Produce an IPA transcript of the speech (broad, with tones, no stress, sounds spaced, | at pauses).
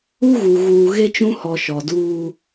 u˦ ɣ u˨ ɣ uː˨ ɣ e˦ t͡ʃ ũ˦ h ɔ˨ ʃ ɔ˨ d uː˦